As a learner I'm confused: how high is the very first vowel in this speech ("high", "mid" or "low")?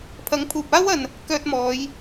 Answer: low